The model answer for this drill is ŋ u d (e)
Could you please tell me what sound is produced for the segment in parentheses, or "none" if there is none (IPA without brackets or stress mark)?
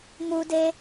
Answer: e